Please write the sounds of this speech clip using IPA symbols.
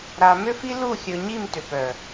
ɾ a˨ m ʏ˦ f i˦ l u˦˨ xʲ ɵ˨ ɲ i˦˨ m t ʏ˨ p œ˨

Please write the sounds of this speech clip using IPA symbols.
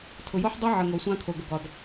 tʰ ʊ˨ j o˦ ħ dˤ o˦ ʕ ə˨ ŋ o˨ sʷ ã˦ kʰ o˨ ɡ ə˨ ɡ ɒ˨ d

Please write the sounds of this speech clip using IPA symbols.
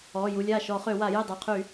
ɔː˩˧˩ j u˩˧˩ lʲ aː˥˩ ʃ ɔː˧˩˧ χ ø˧˩˧ w a˧˩˧ j e˥˩ dˤ e˩˧˩ qʰ y˧˩˧

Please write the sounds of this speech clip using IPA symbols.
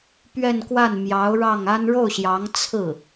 p ɥ ɛ˥˧ n k w a˥˩ n m j ɑ˧˥ ʊ̯ ɻ ɑ˥˩ ŋ a˥ n ɻ o˥˩ ʊ̯ ɕ j ɑ˧˥ ŋ t͡sʰ ɹ̩˥˩

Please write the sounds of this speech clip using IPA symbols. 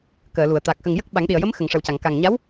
k əː˨˩˨ l u˨˩˨ ə̯ t̪ a˨˩ k̚ x ə˨˩ ŋ j ə˦˥ k̚ ɓ a˨˩˦ ŋ ɗ i˨˩ ə̯ j ə˧˥ m x ə˨˩ ŋ ʂ ə˨˩ w c a˨˩˨ ŋ k a˨˩ ŋ ɲ a˧˥ w

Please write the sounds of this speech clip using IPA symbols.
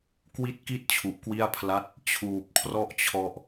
k w i˥˩ t̚ k i˥˩ t̚ t͡ɕʰ u˨˩ ʔ k w i˥˩ a̯ pʰ l a˥˩ t̚ | t͡ɕʰ uː˨˩ p̚ kʰ r ɔ˥˩ ʔ t͡ɕʰ ɔ˦˥ ʔ

